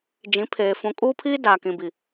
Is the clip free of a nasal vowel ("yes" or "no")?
no